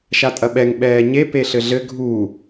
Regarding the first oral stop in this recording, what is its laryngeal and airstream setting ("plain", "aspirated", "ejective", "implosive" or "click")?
ejective